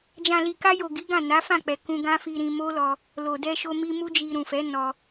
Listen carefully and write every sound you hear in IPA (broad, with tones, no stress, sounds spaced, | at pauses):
d͡ʒ ã˨ l i˨ k a˧ j o˨ ɡ i˨˦ ɡ ã˦˨ n a˨˦ f ã˦˨ k͡p ɛ˨ k ũ˧ ɡ ã˦ f i˧ ɾ ĩ˧ m o˦ l ɔ˧ | l o˨ d ɛ˧ ʃ o˧ m i˦ m u˦ d͡ʒ i˧ ɾ ũ˨ f ɛ˨˦ n ɔ˧